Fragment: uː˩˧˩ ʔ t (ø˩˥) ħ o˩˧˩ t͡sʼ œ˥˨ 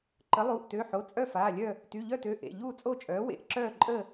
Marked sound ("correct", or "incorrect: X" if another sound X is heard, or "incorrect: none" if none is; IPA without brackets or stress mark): incorrect: ø˩˧˩